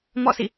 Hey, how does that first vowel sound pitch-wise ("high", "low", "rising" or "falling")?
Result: falling